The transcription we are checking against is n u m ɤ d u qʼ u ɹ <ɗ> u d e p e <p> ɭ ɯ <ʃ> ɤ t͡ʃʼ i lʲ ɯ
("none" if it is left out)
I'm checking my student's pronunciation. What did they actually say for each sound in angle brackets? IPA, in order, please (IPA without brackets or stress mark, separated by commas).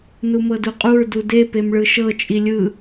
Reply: d, m, ʃ